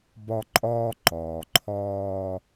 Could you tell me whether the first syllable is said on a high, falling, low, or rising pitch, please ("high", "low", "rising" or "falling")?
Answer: high